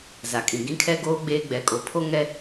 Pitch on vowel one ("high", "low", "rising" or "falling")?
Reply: low